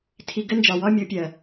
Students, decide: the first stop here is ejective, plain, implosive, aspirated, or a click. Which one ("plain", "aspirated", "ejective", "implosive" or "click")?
aspirated